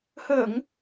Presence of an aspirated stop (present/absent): absent